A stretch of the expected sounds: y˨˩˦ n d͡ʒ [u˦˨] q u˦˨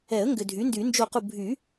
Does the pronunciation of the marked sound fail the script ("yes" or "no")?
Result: yes